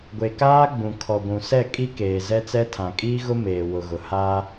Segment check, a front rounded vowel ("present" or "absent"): absent